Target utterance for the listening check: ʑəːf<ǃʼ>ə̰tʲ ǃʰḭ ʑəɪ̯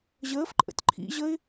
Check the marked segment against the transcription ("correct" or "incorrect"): correct